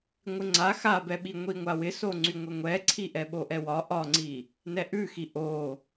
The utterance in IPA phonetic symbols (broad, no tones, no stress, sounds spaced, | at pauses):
ŋʷ ɪ ŋ͡ǀ a x a b ɛ ɓ i ŋʷ i ŋʷ a w ɪ s o ŋ͡ǀ y ŋʷ ɛ ŋʷ ɛ ǀʰ i ʔ ɛ ɓ o ʔ ɛ w ɒ ʔ ɒ ŋ͡ǀ i | n ɛ ʔ ʉ x i ʔ o